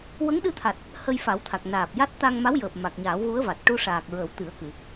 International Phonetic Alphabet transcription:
wə˧˥ŋɗɨ˧t̪ʰa˨˩t̚ | hə˧jfa˨˩˦wt̪ʰa˨˩k̚ naː˨˩p̚ja˦˥t̚ t̪a˧ŋma˧˥wjəː˨˩p̚ ma˨˩k̚ɲaː˨˩˦wɣu˧˥ə̯va˨˩t̚ ʈu˧ʂaː˨˩k̚ ɹə˨˩˦w t̪ɨ˨˩˦ə̯kɨ˨˩˨

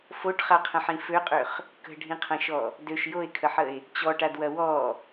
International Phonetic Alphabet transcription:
foʈχaqʰə̃ħĩ føqʼøχ | kə̤ɖʱĩqʰɐ̃ʃɔ | døʃ joe̯kʰəħəe̯ | t͡ɕɔʈadwɐ wɔ

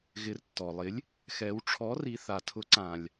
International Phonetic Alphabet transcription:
ɣɪ˩˧rtːɔ˩lˠɪ˩˥lʲ | xɛ˩˧wʈ͡ʂʰɔ˩˥ri˩˧θa˩ tʰʊ˩˥ǀã˩lʲ

